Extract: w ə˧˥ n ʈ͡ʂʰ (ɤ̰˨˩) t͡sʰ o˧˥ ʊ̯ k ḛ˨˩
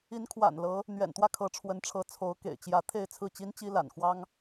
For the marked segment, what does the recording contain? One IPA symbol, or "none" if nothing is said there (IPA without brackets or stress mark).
ɤ˧˥